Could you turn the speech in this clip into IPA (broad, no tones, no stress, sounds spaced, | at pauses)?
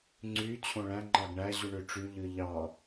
ŋ͡ǀ y t͡ɕʰ õ ɭ æ̃ ŋ͡ǃ ɑ ɡ ɳ æ ʑ u ɳ ø ʈ͡ʂ y ʎ ɯ ʎ ɑ